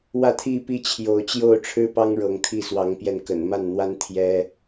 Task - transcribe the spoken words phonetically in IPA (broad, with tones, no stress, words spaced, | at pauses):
wä˥˨t̪ʰi˥˨pi˥˨ t͡ɕʰjo˨˦ʊ̯t͡ɕjo˥˨ʊ̯ʈ͡ʂʰɻ̩˦ pɑ˦ŋɻɤ˨˦ŋ t̪ʰi˥˨swɑ˨˦ŋpjɛ˧n kə̰˨˩nma˥˨nn̪wa˦n t̪ʰjɛ˦